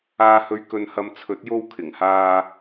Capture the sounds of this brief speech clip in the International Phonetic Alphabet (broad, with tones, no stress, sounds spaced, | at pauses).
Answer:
aː˧ h ɵ˧ ɥ k ɵ˧ n h ɐ˧ m t͡sʰ ɵ˨˥ t̚ j o˧ w kʰ ɪ˨˩ ŋ h aː˧